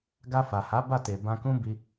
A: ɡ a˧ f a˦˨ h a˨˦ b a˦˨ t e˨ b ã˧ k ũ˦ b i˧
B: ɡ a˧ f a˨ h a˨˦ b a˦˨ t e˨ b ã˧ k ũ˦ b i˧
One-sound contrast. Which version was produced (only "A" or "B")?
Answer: B